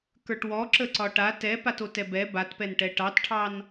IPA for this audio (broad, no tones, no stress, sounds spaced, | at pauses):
k ə˞ ʈ w ɔ ǁ ə ǀ ɒ ʈ a t ɛ p a t o t ɛ b ɛ b a t p ɛ n ʈ ɛ ʈ ɑ t ʈʰ ɑ n